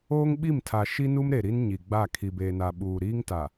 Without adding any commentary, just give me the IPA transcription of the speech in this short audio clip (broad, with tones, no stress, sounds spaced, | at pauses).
oː˦ ŋ ɓ i˦˨ m tʰ a˨ ʃ i˦ n u˦ m ɾ e˨ ɾ i˦ n ɲ i˨ ɡ͡b a˦˨ kʰ i˨ b eː˨ n a˨ ɓ uː˨ ɾ iː˦ ŋ t a˨